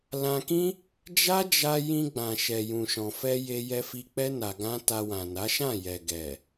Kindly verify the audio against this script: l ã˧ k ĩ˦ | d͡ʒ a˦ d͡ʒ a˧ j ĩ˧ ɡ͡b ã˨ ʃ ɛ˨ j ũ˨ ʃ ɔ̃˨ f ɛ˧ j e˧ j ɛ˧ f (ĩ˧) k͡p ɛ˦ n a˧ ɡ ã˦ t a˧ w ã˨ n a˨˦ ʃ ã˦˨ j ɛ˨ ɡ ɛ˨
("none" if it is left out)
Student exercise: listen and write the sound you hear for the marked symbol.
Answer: i˧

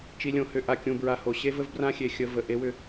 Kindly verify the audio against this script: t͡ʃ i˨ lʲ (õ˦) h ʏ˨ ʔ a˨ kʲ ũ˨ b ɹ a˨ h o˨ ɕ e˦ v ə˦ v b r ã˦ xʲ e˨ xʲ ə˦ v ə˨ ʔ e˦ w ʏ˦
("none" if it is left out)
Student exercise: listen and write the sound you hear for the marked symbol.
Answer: õ˨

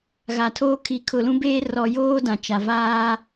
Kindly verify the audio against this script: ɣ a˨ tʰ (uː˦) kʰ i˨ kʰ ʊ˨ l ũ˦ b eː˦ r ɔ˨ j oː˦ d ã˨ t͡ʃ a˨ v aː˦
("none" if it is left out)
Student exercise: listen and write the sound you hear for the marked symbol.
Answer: oː˦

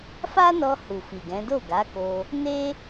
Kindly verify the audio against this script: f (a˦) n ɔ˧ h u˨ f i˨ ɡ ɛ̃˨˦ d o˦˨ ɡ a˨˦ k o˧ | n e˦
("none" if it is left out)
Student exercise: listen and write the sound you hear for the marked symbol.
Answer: a˦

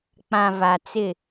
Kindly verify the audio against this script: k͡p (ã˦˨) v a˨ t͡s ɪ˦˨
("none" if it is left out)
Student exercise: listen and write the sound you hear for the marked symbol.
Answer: ã˨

